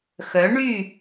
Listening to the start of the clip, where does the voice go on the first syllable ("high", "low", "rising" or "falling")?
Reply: rising